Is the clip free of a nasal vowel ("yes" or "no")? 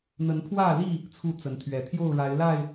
yes